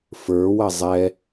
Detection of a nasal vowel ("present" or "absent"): absent